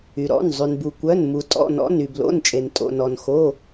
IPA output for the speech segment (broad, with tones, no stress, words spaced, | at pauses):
y˩ ɾɔ̰˩˧˩n zˤy˩nbu˩kʷœ˩˧˩n mu˩tʼɔ̰˩˧˩nɔ̰˩˧˩n y˩blo̰˩˧˩nt͡ʃʼe˩n tʼo̰˩nɔ˩nxo˩˧˩